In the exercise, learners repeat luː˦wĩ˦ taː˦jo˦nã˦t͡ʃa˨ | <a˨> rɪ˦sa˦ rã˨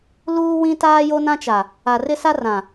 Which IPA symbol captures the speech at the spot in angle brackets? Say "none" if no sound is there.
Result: a˨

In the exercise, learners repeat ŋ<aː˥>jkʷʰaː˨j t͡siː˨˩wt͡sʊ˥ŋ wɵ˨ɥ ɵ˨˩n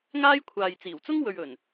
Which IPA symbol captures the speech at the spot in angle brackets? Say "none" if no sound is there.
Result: aː˥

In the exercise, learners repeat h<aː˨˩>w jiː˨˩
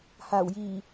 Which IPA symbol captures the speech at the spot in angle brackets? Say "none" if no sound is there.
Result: aː˨˩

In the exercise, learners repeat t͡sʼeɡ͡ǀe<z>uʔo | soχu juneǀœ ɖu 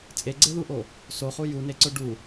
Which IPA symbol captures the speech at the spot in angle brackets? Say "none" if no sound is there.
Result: ð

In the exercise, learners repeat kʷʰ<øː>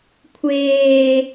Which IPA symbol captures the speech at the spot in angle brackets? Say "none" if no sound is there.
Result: eː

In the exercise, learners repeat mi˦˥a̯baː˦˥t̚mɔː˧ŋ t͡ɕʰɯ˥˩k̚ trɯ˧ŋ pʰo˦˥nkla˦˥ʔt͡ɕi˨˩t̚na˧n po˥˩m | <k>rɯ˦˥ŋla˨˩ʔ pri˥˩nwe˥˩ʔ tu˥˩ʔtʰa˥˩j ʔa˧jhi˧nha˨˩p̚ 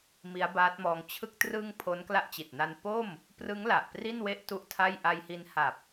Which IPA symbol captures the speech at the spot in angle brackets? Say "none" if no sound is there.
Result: p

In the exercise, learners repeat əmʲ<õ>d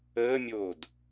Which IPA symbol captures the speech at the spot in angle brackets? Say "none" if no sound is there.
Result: o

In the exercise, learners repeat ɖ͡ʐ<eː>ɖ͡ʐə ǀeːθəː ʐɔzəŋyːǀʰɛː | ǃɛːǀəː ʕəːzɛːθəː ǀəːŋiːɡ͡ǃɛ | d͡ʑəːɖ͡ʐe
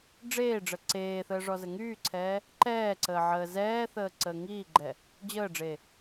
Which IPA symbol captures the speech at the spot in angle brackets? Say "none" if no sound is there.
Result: eː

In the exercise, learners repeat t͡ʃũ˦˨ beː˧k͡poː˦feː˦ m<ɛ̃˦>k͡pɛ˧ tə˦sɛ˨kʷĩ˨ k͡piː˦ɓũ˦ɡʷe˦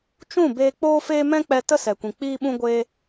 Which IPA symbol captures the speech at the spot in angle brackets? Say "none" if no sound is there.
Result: ɛ̃˦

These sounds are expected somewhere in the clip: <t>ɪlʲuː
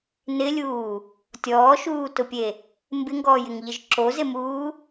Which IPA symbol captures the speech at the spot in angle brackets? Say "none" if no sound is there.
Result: n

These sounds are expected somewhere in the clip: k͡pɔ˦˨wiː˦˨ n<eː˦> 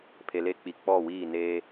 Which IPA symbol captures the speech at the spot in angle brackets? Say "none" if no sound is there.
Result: eː˦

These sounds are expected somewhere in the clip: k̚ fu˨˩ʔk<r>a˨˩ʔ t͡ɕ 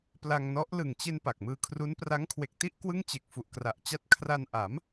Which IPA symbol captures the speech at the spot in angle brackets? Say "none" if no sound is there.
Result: r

